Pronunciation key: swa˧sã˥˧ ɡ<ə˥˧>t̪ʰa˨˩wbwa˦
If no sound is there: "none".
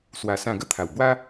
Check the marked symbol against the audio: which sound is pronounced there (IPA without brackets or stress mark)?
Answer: ə˥˧